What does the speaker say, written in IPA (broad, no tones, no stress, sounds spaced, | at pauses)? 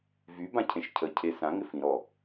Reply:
v y b ã cʰ ẽ ʃ cʰ ə cʰ e s ã ŋ ɪ f ĩ ɾ ɔ